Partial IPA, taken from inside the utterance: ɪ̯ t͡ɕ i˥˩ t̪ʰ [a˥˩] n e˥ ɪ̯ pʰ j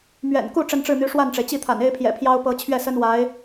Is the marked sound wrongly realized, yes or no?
yes